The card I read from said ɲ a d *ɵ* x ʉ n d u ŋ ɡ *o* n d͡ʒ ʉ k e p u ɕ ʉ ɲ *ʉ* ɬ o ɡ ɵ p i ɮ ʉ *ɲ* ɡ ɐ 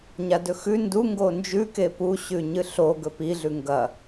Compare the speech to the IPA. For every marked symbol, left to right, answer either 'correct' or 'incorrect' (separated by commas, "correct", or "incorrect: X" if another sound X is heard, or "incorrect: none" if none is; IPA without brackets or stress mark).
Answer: correct, correct, incorrect: ɨ, incorrect: ŋ